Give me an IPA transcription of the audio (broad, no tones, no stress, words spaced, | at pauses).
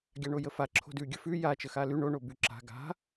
ɡʲaɳojəfa ǁʰo̤dʉ ɡʲəfʉ ja t͡ʃəxaly ɳo ɳobyǁa̤ ɡa̤